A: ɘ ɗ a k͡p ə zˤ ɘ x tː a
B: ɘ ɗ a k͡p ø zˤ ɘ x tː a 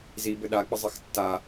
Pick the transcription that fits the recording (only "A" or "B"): A